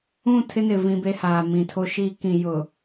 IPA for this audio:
ũ˦˨ tʰ ɪ˦ n ɪ˨ v ĩ˦ b e˦ h aː˨ m ĩ˨ tʰ o˦ ʃ iː˦ k ĩ˨ j ʊ˨

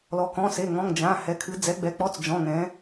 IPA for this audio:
l ɔ˩˧ k ɔ̃˩˧˩ s e˩˧˩ ŋ ɔ̃˩˧˩ ŋ d͡ʒ ã˩˧˩ h ɛ˩˧ kʰ ɨ˩˧ d͡z ɛ˩˧ ɡ͡b ɛ˩˧ k͡p ɔ˩˧˩ t͡s d͡ʒ ɔ̃˩˧˩ ŋ ɛ̃˩˧

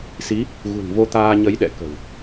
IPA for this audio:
s i˨˦ | ɣ ṳ˨˩ n v o˧ t̪ aː˧ ɲ ə˨˦ j ɗ ɛ̰˧˨ k ə̤˨˩ w

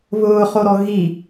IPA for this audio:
β ʊː χ o ɾ ɔ ɣ i

